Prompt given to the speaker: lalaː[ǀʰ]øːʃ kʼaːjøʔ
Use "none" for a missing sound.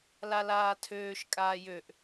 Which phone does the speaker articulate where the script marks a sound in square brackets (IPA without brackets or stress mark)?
tʰ